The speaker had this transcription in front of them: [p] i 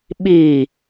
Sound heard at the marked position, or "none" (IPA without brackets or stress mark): ɓ